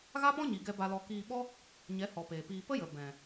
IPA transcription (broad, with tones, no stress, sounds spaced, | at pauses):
ɣ a˦ p ɔ̃˦ ɲ i˨ ɡ ɛ˧ b a˧ l ɔ˧ k iː˧ ɓ ɔ˦ | ɲ ɛ˨˦ h ɔ˨ p eː˨ p iː˧ p ə˦ j ə˨ b ɛ̃˨